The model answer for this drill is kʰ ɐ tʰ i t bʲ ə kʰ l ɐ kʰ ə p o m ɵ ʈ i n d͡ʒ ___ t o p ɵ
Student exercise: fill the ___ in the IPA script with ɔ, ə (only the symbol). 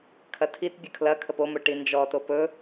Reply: ɔ